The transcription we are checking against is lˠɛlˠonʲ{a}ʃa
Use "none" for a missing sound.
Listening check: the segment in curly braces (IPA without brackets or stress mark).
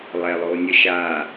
ə